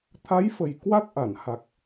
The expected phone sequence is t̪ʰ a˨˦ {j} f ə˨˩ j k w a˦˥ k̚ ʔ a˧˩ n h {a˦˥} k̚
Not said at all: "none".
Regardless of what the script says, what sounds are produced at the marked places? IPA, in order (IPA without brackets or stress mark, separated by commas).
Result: j, a˨˩